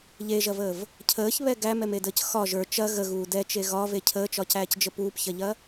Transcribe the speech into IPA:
ʎ e ʒ ɐ v əː v | cʰ əː ç β ɛ ɡ æ m ɛ m e d əː c x ɒ ʒ ə˞ t͡ʃ ɐ ɣ ə ɣ uː d ɛ t͡ʃ e ɣ ɒ v e cʰ əː t͡ʃ ɒ c æː c d͡ʒ ə p uː p ç ɐ ʎ ɐ

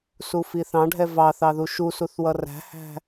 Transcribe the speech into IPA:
s u f i θ ɑ̃ ɖʱ ɛ v ɑ θ ɑ ð u ʃ u s u θ w ʌ r æ̤ h æ̤

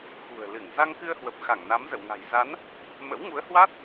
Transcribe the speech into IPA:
x ṳ˨˩ ə̯ l ɨ˧˩ ŋ z a˧ ŋ k ɨ˧ ə̯ h w ə˨˩ p̚ x a˧˩ ŋ n a˨˦ m z ə̰˧˨ w ŋ a̤˨˩ j z a˨˦ n | m ə̰˧˥ w ŋ u˨˦ ə̯ h w aː˦˥ t̚

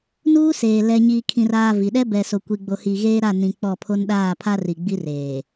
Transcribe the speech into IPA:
n uː˦ s eː˨ l ɛ˨ ɲ iː˨ kʰ ĩ˨ r aː˨ v i˨ ɗ ɛ˦ b ɛ˨ s o˨ kʷ i˨ ɡ͡b o˨ h i˨ ɣ eː˦ ɾ a˦˨ n ĩ˨ k͡p ɔ˦˨ pʰ o˦ n ɗ aː˦˨ pʰ a˦ r i˨ ɡ͡b i˦ r eː˨

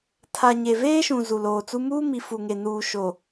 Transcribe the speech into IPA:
tʰ a˨ ɲ e˨ v eː˦ ʃ ũ˨ z u˨ l oː˨ t͡s u˦ m uː˦ m i˨ f u˨ ŋ e˨ n uː˨ ʃ o˨

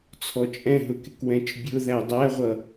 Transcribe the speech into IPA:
t͡sʰ ɔ t͡ʃʼ ɛ̃ ɦ ʊ k ɪ k w ɛ̃ t͡ʃ bʲ ʊ ð æ dˤ æ ʁʷ ʌ

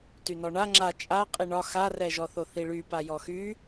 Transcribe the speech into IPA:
t y n ɔ ɳ a ŋ͡ǁ a t͡ʃʼ a qʼ i ɳ ɒ x a r ɛ ʒ ɔ θ o θ i ɭ y p a j ɔ x y

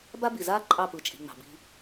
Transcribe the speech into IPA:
b a˦ b i˨ z aː˦ ǃʼ ɑ˦˨ p ɯ˨ t͡ʃʼ i̤˨ ŋ͡m ɑ̤˨ b i̤˧

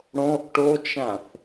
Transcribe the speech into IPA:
ɽ õ ʔ ʈ o t͡ʃ ã θ

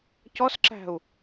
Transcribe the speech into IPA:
c ɔ s ǁ æ̤ u̯

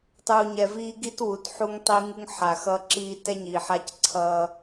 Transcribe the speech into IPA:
tˤ uː˨ ɲ ɛ˨ v iː˦ ɡ i˦ t w u˨ t ħ u˦ ŋ tˤ i˦ ŋ u˦ ŋ ħ a˨ x ʌ˦ ǁ iː˦ t ɛ˦ ɲ iː˨ ħ a˦ c ǀʰ ʌː˦

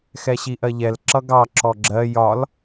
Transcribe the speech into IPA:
x ɛ ɕ i ʔ ɜ ʎ ɛ l ǁ ʌ ɡ ɑ ǁ ɔ ɡ͡ǁ ɜ j ɒ l

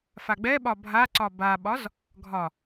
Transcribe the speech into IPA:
f a ɡ͡b ɛ ɓ ɒ bʱ a ǀ ɒ b a ɓ ɒ z | ɡʱ ɒ

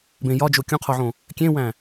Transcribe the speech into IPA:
b ẽ j ɒ d͡ʒ o kʲ ũ qʰ o ʕ õ | kʲ ẽ w æ̃

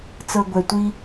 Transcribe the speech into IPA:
t͡s ɤ˧ ɡʷ ɛ˨ tʷ i˦

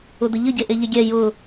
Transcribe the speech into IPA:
ʊ d̪ ə ʎ ə ɟ e ʔ e ʎ e ɡʲ ɛ j ʊ

